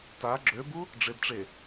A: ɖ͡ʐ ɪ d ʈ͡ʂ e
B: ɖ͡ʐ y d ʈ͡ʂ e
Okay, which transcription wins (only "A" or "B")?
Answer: A